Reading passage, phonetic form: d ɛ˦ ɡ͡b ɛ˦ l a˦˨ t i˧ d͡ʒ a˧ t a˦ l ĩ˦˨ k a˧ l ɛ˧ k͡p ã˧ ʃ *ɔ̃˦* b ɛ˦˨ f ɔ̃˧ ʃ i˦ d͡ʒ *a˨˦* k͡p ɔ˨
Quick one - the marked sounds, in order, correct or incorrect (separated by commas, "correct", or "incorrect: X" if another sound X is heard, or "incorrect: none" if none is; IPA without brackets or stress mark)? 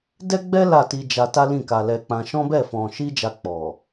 correct, incorrect: a˧